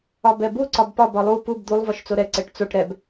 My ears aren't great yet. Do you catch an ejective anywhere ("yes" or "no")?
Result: no